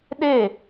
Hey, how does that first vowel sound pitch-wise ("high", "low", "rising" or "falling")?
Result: falling